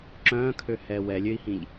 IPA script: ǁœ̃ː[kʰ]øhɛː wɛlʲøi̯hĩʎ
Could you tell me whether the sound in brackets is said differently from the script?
no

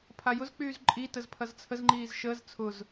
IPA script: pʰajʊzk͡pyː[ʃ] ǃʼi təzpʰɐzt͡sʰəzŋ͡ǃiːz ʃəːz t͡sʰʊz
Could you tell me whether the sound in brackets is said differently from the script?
yes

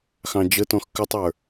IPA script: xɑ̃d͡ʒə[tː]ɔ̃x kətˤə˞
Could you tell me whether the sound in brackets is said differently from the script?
yes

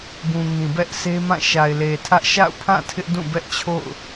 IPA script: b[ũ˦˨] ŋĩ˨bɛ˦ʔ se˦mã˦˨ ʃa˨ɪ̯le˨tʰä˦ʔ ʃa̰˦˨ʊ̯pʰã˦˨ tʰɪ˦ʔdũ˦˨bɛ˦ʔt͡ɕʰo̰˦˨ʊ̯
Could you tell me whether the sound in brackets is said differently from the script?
yes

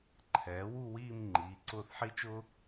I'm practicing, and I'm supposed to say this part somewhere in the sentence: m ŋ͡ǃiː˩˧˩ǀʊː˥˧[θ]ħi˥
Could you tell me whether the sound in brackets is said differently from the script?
no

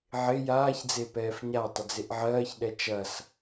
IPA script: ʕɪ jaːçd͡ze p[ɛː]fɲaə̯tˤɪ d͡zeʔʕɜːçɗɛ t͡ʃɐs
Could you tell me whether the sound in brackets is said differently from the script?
no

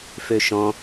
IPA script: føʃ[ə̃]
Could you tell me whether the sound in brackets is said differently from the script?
yes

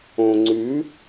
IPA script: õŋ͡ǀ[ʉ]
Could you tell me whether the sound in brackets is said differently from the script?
no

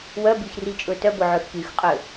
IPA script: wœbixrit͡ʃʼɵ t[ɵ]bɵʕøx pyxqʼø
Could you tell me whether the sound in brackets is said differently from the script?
yes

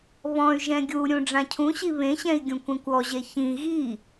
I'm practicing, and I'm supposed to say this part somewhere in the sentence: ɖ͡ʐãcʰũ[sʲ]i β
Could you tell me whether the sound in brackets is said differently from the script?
yes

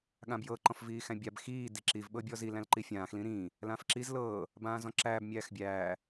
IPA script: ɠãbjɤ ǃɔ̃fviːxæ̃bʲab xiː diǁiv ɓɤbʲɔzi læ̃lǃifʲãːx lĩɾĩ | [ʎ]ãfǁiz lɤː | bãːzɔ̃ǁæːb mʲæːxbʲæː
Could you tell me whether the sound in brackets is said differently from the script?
yes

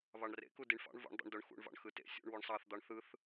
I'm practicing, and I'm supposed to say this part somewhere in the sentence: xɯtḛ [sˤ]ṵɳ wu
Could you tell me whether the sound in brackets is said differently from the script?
yes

